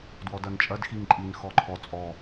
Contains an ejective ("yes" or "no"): yes